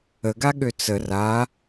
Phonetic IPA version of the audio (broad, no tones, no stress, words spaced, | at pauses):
əɡaɠø t͡sə ra